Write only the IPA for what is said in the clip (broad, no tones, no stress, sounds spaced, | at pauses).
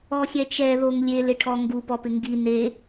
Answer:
ɔ xʲ ɛ t͡ʃ ɛ ð o ŋ lʲ e l ɪ ʈʰ ɔ ŋ ɡ u p ɔ p ɪ ŋ ɡ i n e